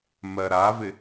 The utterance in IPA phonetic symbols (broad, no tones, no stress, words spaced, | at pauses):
mɜɾavɪ